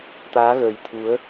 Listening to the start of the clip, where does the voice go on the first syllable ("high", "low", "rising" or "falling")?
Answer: rising